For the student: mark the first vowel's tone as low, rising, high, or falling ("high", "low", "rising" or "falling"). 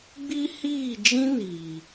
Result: high